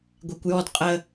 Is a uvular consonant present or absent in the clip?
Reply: present